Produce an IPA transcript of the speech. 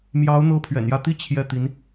m j ɑ˧˥ ʊ̯ n̪ ɤ˥ pʰ ɥ ɛ̰˨˩ n j ä˥˧ t̪ i˥˧ t͡ɕʰ j ɛ˥˩ t̪ i˧˥ n

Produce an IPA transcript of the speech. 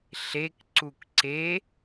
ɬ e k ǀ u k ǀ e

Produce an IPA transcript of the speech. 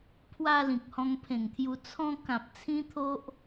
pʰ w a˧ l ĩ˨ k̚ h ɔ̃˧ ŋ pʰ ẽ˨˩ ŋ t̪ʰ j u˧ t͡sʰ ɔ̃˧ k ã˨ p̚ t͡sʰ ĩ˦ t̪ʰ o˦ ʔ

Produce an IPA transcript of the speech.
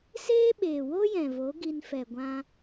s eː˦ ɓ eː˨ w o˦ j ɛ̃˨ v o˨˦ ɡ i˧ n f ɛ˨ ɡʷ ã˧

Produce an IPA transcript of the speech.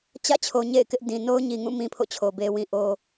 t͡ɕ ä̰˦˨ t͡ɕʰ o˨ ɲ ḛ˦˨ ɪ̯ k ɪ˦ ʔ d ĩ˨ n o˦ ʊ̯ ɲ i˨ ŋ ũ˦˨ m ĩ˦ pʰ o̰˦˨ t͡ɕʰ o˨ b e˨ w ĩ˨ ʔ o˨

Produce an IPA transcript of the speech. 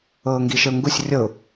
ɤː ŋ ɡ i ʃ ə ʊ̯ ŋ ɡ u sʲ rʲ ɤ ʊ̯

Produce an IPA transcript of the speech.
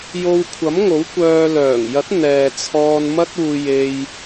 j o˧ w kʷʰ ɐ˨˥ m ŋ o˨˥ w kʷ œː˧ l œː˨˩ ŋ j ɐ˨˥ t̚ n̪ ɛː˨ t͡sʰ ɔː˧ n m ɐ˥ t̚ uː˧ j e˧ j

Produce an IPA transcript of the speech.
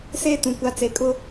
s eː˦ t ũ˨ kʷ a˨˦ t͡s e˨ kʼ ʊ˦

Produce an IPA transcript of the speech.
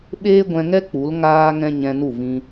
ɓ eː˦ ɡʷ ɛ̃˧ ŋ ɛ˦ k͡p u˨˦ l ŋ aː˦ ŋ ɛ̃˦ ɲ ɛ̃˧ n u˦˨ v ĩ˧

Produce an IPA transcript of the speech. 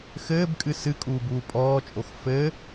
x ɘː b kʼ ɨ s ɨ kʼ uː b uː pʼ ɔː t͡ʃʼ o x f ɘː

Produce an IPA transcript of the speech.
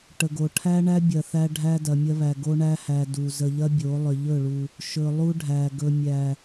ʈ ə˨ ɡ o˨ ʈʰ æ˦ ɳ æ˦ bʲ ɐ˨ θ æ˦ ɖʱ æ˦ d ɐ˨ mʲ ɐ˦ β æ˨ ɡ o˦ ɳ æ˦ h æ˨ d u˨ z ə˨ ʎ ɐ˦ bʲ o˨˦ lˠ ʏ˨ ʎ ɵ˦˨ ɭ u˨ | ʃ ɵ˨ lˠ u˦ ɖʱ æ˨ ɡ ɵ˨ mʲ æ˨

